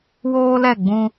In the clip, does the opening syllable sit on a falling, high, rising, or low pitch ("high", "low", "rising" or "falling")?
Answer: high